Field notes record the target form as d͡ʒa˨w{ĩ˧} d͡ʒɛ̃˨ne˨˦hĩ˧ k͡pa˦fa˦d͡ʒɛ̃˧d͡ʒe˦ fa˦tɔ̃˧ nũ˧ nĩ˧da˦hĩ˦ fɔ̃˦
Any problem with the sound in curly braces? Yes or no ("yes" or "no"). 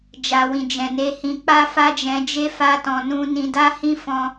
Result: yes